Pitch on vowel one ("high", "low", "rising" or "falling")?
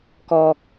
high